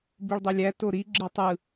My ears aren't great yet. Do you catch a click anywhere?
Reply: yes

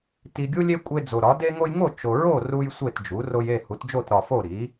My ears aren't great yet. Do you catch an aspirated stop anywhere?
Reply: no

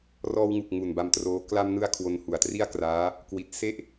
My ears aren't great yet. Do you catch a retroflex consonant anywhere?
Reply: no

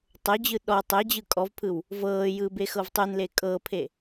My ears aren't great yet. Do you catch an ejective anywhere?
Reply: yes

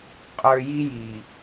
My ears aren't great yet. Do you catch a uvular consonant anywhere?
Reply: yes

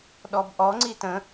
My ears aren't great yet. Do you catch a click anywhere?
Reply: yes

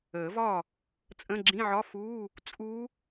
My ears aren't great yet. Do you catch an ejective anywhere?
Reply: yes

